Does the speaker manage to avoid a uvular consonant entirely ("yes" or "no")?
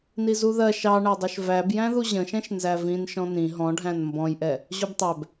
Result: yes